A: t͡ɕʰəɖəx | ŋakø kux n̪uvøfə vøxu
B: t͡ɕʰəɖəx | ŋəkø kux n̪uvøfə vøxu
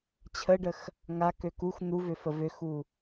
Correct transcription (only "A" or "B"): A